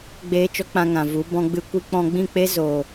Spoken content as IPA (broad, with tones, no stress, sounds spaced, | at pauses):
ɡ͡b eː˦ t͡ʃ ɔ˦ k͡p ã˧ ŋ ã˨ v u˨˦ b ɔ̃˦ ɡ͡b ɨ˦ kʷ i˧ k͡p ɔ̃˧ ɡ͡b ĩ˦˨ k͡p e˦ z o˨